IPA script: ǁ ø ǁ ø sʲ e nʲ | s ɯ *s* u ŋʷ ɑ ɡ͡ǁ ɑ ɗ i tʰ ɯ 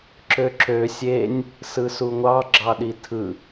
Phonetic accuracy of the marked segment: correct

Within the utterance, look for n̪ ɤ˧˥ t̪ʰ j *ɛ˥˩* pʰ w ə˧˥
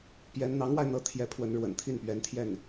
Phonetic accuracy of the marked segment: incorrect: ɛ˧˥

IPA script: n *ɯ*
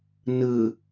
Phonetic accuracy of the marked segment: correct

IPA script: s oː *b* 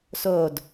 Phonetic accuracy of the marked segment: incorrect: d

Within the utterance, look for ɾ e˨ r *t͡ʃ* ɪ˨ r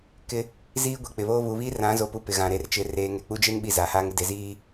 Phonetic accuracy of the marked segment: correct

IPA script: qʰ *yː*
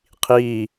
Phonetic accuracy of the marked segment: incorrect: iː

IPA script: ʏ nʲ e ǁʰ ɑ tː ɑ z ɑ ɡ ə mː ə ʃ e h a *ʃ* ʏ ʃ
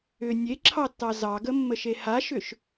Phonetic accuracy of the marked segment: correct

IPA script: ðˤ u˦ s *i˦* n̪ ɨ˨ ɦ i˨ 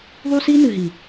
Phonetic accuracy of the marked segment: correct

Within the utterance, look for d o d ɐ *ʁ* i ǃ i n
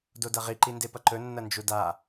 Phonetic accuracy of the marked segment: correct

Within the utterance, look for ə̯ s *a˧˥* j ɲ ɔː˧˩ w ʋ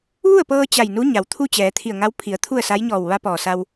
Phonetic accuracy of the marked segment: correct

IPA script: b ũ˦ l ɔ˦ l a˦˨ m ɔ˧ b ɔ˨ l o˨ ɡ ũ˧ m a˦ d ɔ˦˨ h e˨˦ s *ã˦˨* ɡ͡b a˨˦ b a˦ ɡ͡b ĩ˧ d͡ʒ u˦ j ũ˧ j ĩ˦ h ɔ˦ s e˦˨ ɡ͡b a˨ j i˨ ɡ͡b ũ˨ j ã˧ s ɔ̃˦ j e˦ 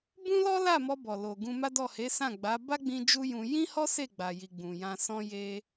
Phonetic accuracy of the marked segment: correct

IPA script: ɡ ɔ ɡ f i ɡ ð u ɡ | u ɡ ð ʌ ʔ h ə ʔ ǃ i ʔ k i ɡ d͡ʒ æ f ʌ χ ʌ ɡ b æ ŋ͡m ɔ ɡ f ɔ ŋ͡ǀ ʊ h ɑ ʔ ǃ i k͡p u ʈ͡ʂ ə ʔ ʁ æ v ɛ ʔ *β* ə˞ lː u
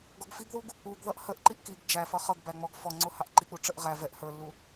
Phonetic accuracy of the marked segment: incorrect: h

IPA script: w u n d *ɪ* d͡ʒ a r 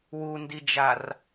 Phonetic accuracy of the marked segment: incorrect: i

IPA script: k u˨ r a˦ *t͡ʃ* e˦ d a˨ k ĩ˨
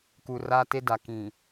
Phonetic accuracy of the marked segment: incorrect: t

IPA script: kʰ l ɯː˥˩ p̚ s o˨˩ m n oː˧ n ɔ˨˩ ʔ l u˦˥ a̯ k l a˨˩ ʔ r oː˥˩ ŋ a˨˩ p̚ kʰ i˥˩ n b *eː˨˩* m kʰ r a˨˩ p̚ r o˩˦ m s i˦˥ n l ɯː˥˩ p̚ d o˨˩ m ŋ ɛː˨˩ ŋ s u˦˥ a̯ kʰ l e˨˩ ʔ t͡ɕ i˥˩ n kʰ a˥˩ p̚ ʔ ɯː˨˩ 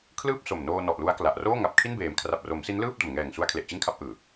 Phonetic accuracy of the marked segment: correct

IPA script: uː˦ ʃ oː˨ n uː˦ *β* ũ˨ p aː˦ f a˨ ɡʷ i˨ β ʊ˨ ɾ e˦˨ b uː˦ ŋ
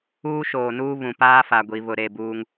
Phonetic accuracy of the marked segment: correct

